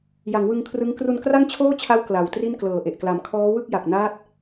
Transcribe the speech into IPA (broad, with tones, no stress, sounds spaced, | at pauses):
j a˩˦ ŋ w ɯ˧ ŋ kʰ r ɯ˦˥ ŋ k r u˧ n k r a˥˩ ŋ t͡ɕʰ oː˥˩ t͡ɕʰ a˦˥ w k l a˨˩ w t r i˥˩ n k l ɤː˨˩ ʔ e˨˩ ʔ k l a˨˩ m kʰ ɔː˦˥ w ɯ˥˩ k̚ j a˨˩ k̚ n aː˦˥ t̚